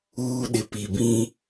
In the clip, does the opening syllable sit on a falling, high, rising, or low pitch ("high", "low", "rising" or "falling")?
high